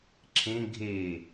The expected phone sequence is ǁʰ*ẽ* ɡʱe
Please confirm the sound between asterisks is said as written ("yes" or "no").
yes